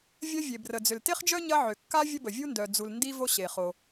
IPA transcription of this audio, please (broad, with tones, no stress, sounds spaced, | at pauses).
vʲ ɐ˥ vʲ e˩ b r ə˩ d͡z ʏ˩ l t e˥ χ d͡ʒ œ˥ ɲ ɐ˥ ʕ ʏ˩ kː a˥ vʲ ə˥ b ə˩ vʲ u˥ n d œ˩ d͡z u˩ l n d i˥ v o˥ ɕ e˩ χ o˩